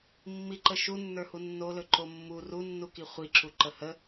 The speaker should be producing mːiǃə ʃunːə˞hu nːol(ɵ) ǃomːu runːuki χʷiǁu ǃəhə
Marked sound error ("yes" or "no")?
no